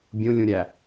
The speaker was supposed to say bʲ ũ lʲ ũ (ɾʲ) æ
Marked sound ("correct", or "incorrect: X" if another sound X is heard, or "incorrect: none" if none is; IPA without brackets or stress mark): correct